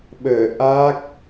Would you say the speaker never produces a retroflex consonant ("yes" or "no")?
yes